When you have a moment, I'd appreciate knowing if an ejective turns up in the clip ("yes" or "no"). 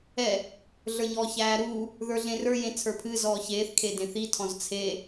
no